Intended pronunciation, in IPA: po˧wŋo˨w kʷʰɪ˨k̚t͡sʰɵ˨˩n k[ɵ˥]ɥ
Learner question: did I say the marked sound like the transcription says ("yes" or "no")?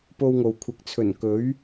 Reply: no